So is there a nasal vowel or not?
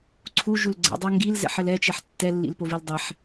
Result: no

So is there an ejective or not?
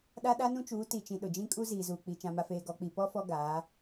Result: yes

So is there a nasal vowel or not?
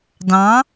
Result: yes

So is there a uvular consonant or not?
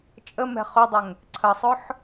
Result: yes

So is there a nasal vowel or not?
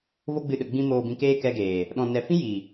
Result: yes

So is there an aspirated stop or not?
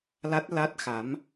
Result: no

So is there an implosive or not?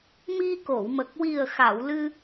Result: no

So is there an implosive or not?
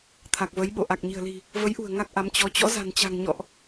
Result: yes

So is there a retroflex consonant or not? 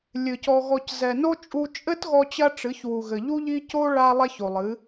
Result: yes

